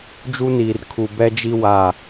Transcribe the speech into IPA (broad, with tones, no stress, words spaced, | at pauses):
d͡ʒu˦niː˨r kʰu˨bɛ˦d͡ʒi˦ wa˦˨